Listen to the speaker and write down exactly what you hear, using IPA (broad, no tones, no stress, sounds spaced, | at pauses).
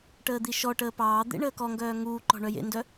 ʈ əː d̪ i ʃ ɔ ʈ əː p ɑː d̪ ḛ ɳ əː k ɔ ŋ ɡ œː ŋ uː ǃ ɔ̤ ɳ œ j ḛ n d œ